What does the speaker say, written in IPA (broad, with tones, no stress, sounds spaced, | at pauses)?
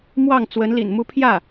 m w ɑ˥˩ ŋ t͡s w ə˧˥ n l ḭ˨˩ n m u˧˥ pʰ j ä˥˩